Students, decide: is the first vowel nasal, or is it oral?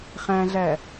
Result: nasal